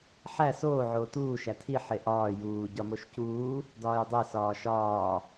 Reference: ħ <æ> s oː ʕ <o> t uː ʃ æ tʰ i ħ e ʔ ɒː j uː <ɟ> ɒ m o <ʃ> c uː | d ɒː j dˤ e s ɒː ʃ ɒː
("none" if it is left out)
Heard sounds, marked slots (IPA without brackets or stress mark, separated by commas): æ, oː, ɟ, ʃ